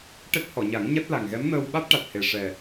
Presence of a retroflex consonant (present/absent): present